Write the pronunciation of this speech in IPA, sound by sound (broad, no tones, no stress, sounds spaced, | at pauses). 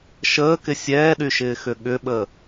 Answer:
ʃ əː k ɪ sʲ ɛː ɗ y ʃ ɪː x ʏ ɠ ʏ ɓ ə